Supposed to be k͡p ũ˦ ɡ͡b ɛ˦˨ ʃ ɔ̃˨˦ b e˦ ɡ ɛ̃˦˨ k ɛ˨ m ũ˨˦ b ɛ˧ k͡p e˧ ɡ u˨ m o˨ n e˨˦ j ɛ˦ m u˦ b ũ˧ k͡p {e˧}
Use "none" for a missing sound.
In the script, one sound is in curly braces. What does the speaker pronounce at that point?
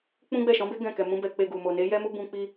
i˧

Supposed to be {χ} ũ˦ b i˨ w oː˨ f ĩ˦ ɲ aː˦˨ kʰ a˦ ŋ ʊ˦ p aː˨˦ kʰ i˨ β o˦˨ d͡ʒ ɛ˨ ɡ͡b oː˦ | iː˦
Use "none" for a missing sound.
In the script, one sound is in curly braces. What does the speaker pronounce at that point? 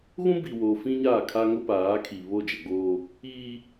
ɣ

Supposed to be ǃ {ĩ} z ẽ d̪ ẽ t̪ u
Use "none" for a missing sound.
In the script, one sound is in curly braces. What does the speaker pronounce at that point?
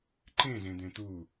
ẽ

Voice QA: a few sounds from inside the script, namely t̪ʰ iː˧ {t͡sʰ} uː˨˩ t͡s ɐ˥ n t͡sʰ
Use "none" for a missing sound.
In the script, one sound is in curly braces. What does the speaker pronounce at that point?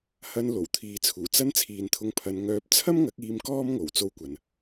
t͡sʰ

